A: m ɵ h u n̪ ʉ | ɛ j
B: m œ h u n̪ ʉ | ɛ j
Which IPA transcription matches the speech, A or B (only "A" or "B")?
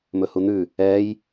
A